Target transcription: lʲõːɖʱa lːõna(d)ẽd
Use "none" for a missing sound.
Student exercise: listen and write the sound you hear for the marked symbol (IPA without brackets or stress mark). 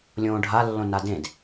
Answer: d